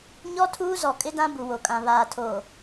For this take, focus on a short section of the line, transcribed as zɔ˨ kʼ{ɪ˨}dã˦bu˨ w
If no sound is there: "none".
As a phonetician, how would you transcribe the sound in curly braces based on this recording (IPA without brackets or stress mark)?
ɪ˦